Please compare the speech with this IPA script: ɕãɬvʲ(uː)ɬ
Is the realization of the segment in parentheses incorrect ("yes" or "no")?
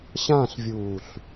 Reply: no